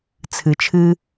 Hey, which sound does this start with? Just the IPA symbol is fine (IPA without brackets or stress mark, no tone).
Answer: t͡sʰ